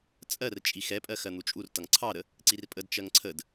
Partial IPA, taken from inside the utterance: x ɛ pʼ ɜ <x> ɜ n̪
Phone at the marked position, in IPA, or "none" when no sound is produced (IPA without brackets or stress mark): x